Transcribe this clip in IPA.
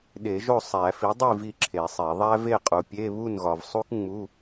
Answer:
ɗ e˨˩˦ ʒ o˥˨ sˤ æ˨˩˦ f i˩˥ dˤ i˥˨ v i˥˨ ǁʰ e˨˩˦ sˤ e˨˩˦ ðˤ æ˥ v e˥˨ qʼ u˨ pʲ e˧˥˧ β u˥˨ n ɣ ɒ˨ v sˤ u˥ k ŋ͡m u˧˥˧

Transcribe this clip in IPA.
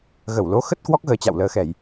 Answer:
ɣ ə˧˩ w l o˨˦ x ə˦˥ t̚ k w ɔ˦˥ k̚ ɣ əː˨˦ t͡ɕ a̰˧˨ w l əː˨˩ x ɛ˧˩˨ j

